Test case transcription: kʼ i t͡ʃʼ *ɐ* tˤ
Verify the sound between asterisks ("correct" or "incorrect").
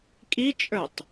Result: incorrect